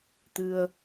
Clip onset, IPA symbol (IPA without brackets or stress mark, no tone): t̪